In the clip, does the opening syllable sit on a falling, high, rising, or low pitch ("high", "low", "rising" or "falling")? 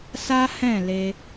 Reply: high